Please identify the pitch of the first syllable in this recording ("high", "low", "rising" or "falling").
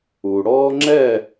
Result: low